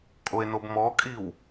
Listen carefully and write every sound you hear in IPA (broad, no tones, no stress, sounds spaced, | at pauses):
kʼ o e̯ n o b m ɔ kʼ i w